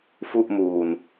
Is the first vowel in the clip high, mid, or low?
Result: high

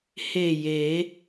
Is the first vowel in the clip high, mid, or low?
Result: mid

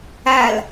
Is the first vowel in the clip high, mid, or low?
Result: low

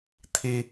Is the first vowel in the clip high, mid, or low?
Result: high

